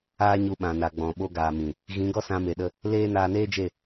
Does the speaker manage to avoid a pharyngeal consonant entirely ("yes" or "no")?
yes